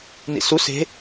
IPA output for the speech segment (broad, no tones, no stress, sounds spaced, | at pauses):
n ḭ s u s e̤